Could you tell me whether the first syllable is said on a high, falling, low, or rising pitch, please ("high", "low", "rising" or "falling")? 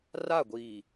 falling